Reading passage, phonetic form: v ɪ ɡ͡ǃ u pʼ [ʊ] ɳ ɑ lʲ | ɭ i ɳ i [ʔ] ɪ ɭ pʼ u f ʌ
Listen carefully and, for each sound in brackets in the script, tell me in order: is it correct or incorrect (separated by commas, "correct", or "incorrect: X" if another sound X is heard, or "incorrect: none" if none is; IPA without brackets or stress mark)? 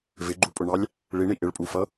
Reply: correct, correct